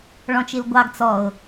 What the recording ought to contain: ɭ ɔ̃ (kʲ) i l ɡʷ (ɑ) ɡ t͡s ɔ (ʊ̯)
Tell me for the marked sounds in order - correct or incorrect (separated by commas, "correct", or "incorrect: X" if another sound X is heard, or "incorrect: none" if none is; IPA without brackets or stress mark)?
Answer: incorrect: t͡ʃ, correct, correct